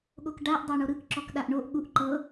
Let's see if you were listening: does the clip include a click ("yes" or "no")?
yes